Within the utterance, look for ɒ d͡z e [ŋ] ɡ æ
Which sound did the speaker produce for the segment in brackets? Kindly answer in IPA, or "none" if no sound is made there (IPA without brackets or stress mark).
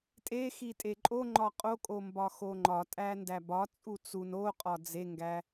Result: ŋ